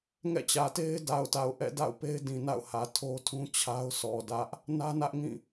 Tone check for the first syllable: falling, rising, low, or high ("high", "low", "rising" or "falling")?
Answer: falling